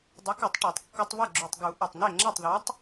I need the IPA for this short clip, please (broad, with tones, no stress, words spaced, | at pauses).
dˤʌ˨˥kɯ˨˩˦tˤ ʈe˨˩˦tˤkːɔ˦tˤ βɐ˥˩ɡ͡ǁu˨˩tˤɡu˨˩˦ ʔɔ˨˩tˤne˥˩ ŋ͡ǁɐ˥˩tˤðɔ˨˥tˤ